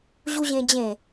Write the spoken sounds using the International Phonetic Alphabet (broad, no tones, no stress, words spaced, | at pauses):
ʑuʑẽd͡ʑẽ